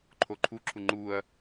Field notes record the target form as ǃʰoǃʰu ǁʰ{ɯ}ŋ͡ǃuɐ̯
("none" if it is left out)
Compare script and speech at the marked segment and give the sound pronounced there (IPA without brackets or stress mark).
u